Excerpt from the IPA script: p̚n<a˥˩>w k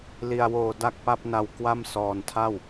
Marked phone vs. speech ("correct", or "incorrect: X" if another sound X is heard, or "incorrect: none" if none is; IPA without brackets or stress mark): incorrect: a˧